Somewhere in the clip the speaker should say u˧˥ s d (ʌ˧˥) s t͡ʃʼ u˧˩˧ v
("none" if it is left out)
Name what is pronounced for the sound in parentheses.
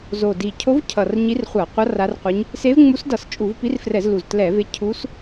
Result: ʌ˧˩˧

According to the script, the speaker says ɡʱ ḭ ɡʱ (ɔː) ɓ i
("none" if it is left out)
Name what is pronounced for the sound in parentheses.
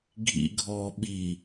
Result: ɔː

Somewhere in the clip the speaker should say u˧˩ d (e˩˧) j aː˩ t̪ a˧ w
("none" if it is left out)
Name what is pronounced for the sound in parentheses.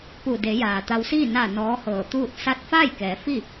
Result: e˩˧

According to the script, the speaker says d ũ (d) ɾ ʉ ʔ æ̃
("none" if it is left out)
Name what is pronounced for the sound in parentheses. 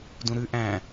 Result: none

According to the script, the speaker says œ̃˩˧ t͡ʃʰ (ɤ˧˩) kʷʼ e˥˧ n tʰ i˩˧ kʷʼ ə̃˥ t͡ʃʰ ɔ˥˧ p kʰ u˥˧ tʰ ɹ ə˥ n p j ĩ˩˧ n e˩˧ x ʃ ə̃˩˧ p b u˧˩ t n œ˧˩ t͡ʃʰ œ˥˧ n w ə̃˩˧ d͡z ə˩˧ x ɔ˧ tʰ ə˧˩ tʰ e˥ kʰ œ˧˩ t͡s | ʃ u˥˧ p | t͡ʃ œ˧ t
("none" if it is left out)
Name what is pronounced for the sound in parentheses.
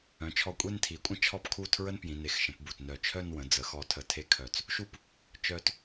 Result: ɔ˧˩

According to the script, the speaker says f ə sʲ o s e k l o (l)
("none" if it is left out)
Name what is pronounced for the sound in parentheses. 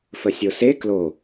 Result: none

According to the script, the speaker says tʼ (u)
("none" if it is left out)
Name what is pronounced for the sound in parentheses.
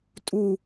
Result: u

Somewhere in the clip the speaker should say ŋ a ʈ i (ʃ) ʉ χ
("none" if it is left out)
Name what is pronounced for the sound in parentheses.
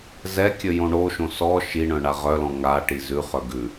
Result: z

